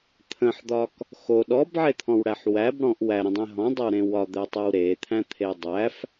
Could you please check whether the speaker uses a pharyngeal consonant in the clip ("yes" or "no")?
yes